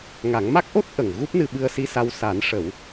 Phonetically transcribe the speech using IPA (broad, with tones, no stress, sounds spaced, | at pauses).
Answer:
ŋ a˨˩˦ ŋ m a˦˥ k̚ ʔ o˦˥ t̚ ʔ ə˨˩ ŋ ɣ u˦˥ p̚ n ɨ˧ ɓ ɨ˧ ə̯ s i˧˥ s a˧ w s a˨˩˦ n ʂ ə˨˩˦ w